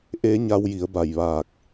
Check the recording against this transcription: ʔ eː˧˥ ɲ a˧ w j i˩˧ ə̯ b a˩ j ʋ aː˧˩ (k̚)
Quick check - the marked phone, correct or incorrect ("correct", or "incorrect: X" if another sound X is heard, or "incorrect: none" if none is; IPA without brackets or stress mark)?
correct